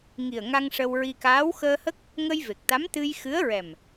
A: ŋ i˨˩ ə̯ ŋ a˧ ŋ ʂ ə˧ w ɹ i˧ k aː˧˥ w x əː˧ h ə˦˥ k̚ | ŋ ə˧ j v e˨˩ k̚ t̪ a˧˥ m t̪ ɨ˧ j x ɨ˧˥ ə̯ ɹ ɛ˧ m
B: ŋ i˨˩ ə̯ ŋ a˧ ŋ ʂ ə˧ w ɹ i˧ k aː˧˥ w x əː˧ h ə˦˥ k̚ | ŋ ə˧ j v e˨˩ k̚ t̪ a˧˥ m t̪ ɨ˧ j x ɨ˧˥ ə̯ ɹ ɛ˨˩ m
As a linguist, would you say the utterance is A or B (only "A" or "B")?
B